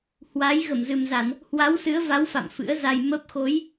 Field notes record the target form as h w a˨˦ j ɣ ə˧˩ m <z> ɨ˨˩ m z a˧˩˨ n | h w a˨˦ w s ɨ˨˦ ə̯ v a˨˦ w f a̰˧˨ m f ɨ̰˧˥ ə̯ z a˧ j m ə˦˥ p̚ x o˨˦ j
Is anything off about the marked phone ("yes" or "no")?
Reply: no